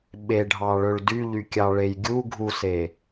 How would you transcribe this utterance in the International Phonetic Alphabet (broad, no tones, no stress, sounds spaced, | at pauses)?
ɓ e ɖʱ ɑ ɭ ɵ ɭ d y ʎ y kʲ ɑ ɭ e j ɡʲ u ɡʱ u s e